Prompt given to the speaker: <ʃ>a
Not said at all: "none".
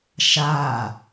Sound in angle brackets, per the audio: ʃ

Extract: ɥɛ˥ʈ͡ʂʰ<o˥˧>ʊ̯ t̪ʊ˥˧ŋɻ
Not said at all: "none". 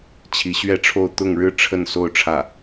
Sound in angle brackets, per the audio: o˥˧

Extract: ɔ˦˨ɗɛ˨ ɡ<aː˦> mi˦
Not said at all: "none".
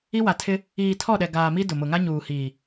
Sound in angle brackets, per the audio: aː˨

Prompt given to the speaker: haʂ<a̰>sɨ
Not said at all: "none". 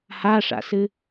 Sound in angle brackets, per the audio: a̰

